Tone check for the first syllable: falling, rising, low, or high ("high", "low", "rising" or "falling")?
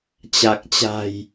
low